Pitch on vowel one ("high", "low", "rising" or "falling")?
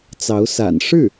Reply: rising